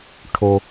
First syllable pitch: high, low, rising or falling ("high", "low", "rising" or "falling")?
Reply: low